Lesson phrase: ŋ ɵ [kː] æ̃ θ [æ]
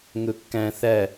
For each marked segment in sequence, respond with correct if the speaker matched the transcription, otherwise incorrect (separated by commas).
correct, correct